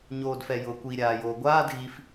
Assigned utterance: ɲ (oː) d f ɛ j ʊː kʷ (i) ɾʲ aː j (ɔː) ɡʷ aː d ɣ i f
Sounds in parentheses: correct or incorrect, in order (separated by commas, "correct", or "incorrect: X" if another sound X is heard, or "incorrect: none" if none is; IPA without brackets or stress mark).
correct, correct, incorrect: oː